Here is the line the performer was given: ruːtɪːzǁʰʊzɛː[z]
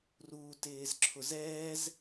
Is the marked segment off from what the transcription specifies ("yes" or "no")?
no